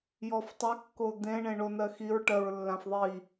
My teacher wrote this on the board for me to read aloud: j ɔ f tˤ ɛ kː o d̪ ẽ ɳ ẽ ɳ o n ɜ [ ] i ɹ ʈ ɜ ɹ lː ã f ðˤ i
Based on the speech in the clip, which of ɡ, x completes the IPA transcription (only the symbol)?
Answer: x